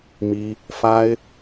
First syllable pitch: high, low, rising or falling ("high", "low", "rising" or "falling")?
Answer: high